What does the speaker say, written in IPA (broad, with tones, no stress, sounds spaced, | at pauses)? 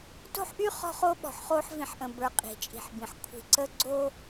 t o̤˦ ħ ʔ y˦ χ ɔ̤˦ χ o˦ ɓ ɔ̤˨ ħ χ oː˦ ħ v ĩ˨ ħ ʔ ə̃˨ b ə˞˨ qʼ i̤˨ t͡ʃʼ i̤˨ ħ b ĩ˨ ħ kʷʰ i̤˨ ǀ ə˦ ɡ͡ǀ o˦